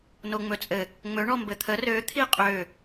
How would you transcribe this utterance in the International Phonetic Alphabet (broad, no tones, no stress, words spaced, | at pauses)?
noŋ͡mɵt͡sʼɘ | ŋ͡mɵ ɳɔmbɘt̪ʰə rø t̪ʰiqʼø